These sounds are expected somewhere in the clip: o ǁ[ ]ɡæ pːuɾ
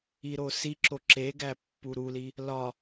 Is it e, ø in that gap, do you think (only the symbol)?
e